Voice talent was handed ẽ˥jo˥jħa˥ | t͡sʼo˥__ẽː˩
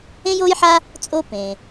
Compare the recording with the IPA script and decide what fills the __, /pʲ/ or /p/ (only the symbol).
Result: p